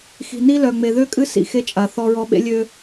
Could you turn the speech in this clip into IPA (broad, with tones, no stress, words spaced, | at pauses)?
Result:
xi̤˨ni˦lœ˨ŋ͡me˨ ðø˦kʼɨ˦ sḭ˨xe˦t͡ʃʼa˨ θɔ˦ɹɔ˦ ɓḛ˦lʲø˦